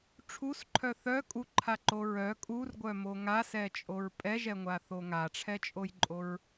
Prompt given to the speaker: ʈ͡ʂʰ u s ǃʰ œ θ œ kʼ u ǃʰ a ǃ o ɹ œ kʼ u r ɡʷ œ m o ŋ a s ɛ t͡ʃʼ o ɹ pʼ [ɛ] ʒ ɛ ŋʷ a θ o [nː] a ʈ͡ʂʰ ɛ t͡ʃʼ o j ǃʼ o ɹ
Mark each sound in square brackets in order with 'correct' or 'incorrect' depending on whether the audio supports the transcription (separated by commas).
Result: correct, incorrect